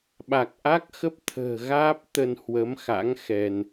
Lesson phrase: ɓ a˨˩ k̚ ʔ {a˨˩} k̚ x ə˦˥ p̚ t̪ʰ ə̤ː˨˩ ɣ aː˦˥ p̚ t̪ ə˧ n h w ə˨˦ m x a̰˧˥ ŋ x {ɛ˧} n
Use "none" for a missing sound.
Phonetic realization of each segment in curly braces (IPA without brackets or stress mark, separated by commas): a˦˥, ɛ˧